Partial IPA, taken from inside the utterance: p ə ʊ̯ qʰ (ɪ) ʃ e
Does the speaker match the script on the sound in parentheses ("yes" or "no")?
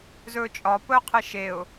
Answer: yes